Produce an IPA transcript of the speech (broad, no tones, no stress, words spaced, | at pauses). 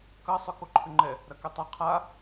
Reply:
kɐsˤʏ koǃʰʏŋ͡ǃɛ | ɾɐketˤɐ qʰa